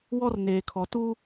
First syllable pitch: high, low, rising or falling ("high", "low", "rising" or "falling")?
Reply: high